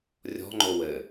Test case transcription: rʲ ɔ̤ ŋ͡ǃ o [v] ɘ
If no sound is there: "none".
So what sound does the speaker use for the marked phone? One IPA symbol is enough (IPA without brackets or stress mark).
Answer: w